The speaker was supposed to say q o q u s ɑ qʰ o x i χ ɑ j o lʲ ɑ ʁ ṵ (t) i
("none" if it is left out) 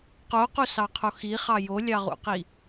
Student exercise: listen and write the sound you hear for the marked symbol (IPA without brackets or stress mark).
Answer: q